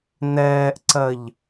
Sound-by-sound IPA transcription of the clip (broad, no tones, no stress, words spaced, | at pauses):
nɛːʔǀɜʎ